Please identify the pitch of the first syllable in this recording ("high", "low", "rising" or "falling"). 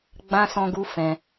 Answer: high